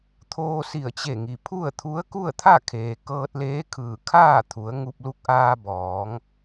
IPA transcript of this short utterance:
t̪ʰ oː˧ s i˧˩ ə̯ t͡ɕ e˧˩ ŋ i˩ pʰ u˥˨ ə̯ t̪ʰ u˧˥ ə̯ k u˥˨ ə̯ t̪ʰ a˥˨ kʰ eː˩ k ɤː˧ t̚ l eː˧˥ kʰ ɯː˧˩ kʰ aː˥˨ t̪ʰ u˩˧ ə̯ ŋ u˧ p̚ l u˧˥ k̚ ʔ aː˧ b ɔː˩˧ ŋ

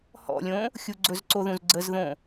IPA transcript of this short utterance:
h ɔ̰ lʲ õ | xʲ u ɡ͡ǀ ɵ z ǀ o ð ũ z ɡ͡ǀ ə z ð õ

